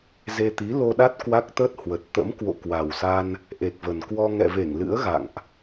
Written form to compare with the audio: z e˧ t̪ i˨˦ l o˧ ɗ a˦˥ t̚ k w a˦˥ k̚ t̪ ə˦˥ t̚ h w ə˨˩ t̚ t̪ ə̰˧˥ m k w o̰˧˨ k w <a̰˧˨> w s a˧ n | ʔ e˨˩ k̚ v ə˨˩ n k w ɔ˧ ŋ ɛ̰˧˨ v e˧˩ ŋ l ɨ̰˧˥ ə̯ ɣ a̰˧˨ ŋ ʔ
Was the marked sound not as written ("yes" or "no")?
yes